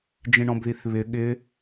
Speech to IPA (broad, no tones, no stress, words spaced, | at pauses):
d͡ʒĩɳɔ̃bðiθβɪ ɠɪ